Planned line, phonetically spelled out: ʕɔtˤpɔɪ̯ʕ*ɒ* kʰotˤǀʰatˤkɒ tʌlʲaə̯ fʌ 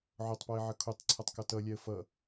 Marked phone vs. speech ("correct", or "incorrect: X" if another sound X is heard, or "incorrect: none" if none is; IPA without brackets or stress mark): incorrect: ʌ